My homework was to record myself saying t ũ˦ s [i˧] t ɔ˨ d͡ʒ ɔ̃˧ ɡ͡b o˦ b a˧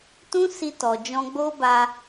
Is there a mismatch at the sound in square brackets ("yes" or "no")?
no